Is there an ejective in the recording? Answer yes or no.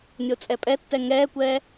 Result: yes